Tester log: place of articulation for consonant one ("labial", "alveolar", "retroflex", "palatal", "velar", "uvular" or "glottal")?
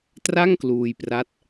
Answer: alveolar